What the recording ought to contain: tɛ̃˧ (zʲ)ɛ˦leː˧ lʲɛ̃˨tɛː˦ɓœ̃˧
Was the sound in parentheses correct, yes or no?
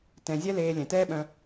yes